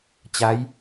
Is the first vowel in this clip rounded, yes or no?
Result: no